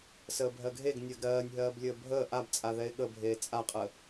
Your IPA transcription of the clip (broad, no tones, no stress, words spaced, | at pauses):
səːbʱɜɡʱeɡ nʲɜɡɾɜːnʲɦɜːblʲəː bʱəː ʔabt͡sʼa ðɛɪ̯ɠəbʱeː t͡sʼaqʼə